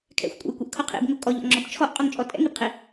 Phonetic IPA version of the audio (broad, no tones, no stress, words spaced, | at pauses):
kʰɛ̰xʷkʷʼɛ̰jkʷɛʔkʰo qʰḭbŋʊ kʼɔʎɔ̰ŋ͡ǁɔb t͡ʃʰɔʔqʼoŋt͡ʃʼɔ tʼɛ̰ŋibqʰi